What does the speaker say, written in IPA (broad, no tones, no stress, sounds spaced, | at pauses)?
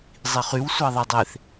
zˤ i χ y w sʷ ɑ ðˤ e dˤ e θ